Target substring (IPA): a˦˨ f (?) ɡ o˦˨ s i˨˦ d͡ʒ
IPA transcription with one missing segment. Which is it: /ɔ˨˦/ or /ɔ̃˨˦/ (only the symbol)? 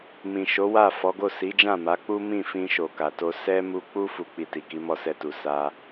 ɔ˨˦